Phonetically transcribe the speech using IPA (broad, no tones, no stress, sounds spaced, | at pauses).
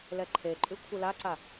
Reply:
l ɛ ǃʰ e ǃʼ ʉ kʷʰ ɯ l a ǀ a